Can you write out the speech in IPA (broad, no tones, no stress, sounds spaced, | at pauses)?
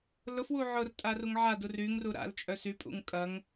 l ʊ f w u ʕ ʊ r tʼ a r u ŋ ʕ a d u r y ŋ r u ɾ a̰ l t͡ʃʼ œ s y pʼ ṵ ŋ kʼ ɐ ŋ